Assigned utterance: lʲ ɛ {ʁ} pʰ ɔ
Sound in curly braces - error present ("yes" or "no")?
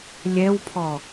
yes